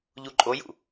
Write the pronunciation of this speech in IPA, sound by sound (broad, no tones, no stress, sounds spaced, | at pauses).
ʎ u ǃʼ o j ṵ